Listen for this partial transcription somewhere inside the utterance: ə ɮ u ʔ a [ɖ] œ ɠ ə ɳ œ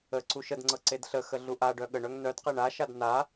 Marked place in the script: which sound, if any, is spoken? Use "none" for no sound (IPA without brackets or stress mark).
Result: ɖ